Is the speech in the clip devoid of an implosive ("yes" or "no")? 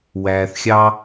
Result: yes